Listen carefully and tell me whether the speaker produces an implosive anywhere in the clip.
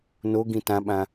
yes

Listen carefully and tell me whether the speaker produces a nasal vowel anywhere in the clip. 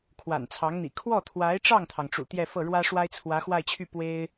no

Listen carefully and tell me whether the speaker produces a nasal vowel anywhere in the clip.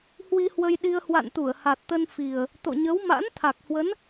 no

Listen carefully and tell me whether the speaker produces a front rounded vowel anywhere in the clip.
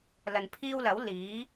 no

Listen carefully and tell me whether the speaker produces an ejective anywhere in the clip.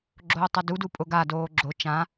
yes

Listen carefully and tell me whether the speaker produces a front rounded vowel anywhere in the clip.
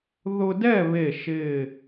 no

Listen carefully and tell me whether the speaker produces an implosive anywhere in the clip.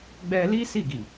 no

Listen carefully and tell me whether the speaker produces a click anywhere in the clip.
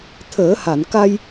no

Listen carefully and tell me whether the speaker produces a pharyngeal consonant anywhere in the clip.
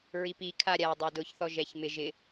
no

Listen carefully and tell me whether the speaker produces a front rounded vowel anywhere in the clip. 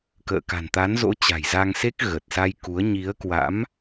no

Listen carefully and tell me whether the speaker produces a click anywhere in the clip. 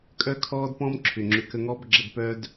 yes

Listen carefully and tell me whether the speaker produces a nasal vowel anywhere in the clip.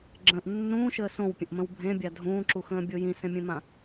yes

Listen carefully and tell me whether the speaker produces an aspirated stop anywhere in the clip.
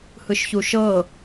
no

